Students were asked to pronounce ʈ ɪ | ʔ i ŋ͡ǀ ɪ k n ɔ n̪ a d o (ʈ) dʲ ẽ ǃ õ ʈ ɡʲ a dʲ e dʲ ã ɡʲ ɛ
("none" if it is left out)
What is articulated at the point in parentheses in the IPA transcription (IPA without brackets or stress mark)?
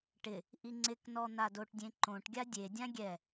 ʈ